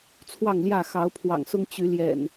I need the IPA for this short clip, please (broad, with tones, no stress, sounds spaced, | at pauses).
t͡sʰ w ɑ˥˨ ŋ l j ä˥˨ x ɑ˨˦ ʊ̯ pʰ w ɑ̰˨˩ ŋ s ʊ˦ ŋ t͡ɕ y˨˦ l j ɛ̰˨˩ n